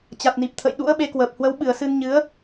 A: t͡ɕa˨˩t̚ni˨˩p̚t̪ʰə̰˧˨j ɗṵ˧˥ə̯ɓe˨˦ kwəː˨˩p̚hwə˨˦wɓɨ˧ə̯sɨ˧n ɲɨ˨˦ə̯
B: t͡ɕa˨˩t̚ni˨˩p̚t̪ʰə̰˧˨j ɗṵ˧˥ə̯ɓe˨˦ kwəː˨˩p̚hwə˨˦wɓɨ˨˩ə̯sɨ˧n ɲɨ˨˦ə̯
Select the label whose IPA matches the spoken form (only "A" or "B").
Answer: B